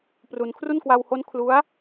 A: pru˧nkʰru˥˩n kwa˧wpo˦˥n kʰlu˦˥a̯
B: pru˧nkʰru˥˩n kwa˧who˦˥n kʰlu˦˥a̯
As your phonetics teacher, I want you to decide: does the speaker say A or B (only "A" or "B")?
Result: B